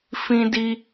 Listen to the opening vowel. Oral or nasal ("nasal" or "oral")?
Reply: nasal